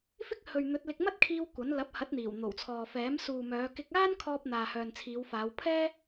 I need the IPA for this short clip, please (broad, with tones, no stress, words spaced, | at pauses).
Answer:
fɪ˥k̚hɵ˨ɥ n̪ɵ˨˥t̚lɪ˧k̚ mɐ˥t̚kʰiː˧w kʷɐ˨˥n lɐ˨˥p̚hɐ˨˥t̚n̪iː˨˩w n̪o˨˩wt͡sʰɔː˨fɛː˨˥m suː˨mœː˨˧ kɪ˧k̚aː˥nkʰɔː˧p̚ n̪aː˨hœː˨nt͡sʰiː˨˧wfaː˨˧w pʰɛː˥